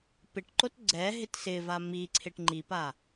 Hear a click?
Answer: yes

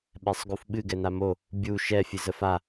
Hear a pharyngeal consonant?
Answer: no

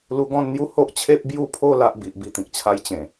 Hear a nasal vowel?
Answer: yes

